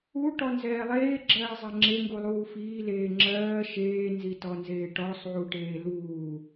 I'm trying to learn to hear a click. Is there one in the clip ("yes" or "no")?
yes